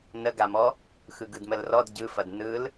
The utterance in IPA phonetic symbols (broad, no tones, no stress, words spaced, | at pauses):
nəɡamɔ | xɯɡɯdməlrɔd ɟɯfɐd nɯl